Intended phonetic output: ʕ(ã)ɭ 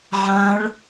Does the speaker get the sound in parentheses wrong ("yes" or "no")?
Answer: no